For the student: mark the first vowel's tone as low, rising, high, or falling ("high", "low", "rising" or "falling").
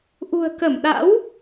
low